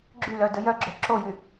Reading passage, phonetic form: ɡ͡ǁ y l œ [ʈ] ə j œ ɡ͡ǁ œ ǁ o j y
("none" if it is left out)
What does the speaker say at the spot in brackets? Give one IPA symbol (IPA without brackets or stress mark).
d